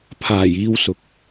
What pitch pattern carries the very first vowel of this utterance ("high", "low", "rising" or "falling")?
low